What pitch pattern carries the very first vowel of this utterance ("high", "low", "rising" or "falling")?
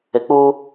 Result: low